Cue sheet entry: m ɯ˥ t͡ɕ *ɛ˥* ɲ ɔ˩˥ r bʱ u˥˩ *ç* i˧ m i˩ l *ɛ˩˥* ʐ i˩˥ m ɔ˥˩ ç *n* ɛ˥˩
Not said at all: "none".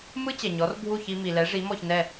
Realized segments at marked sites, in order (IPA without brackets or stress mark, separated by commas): ɛ˩, ç, ɛ˩˥, n